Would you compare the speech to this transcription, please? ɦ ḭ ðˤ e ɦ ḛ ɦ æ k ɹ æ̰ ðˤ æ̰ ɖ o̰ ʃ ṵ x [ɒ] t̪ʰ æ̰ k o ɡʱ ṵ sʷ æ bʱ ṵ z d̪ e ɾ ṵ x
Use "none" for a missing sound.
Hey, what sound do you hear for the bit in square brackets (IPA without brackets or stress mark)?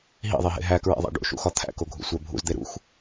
ɒ